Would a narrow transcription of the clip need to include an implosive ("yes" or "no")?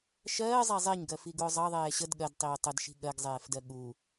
yes